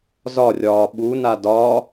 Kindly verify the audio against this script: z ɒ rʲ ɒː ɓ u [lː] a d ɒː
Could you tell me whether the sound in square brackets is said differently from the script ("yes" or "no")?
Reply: yes